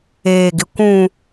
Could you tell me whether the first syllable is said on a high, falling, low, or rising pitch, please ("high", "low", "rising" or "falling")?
low